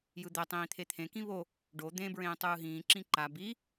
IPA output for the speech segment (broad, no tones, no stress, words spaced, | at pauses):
jɯd̪ɛ tˤĩːt̪ʰet̪ʰẽ kĩβo | ɖo d̪ẽ bɹẽːtˤɯːɦĩː ǁĩǃa bi